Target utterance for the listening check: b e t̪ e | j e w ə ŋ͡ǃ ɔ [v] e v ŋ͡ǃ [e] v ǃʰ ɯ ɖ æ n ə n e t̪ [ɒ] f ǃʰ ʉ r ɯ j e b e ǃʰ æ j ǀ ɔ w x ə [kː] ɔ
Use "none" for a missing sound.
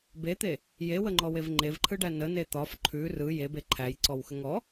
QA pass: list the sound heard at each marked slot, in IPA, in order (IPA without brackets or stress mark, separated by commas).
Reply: w, e, ɒ, ŋ